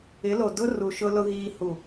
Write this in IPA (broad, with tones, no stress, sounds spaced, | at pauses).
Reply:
ɪ˨˦ l o˨ d ʊ˦ r u˨ ʃ ʊ˦ l ʊ˦ ɣ iː˦ h u˦˨